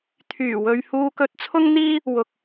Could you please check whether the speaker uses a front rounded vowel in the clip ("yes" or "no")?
yes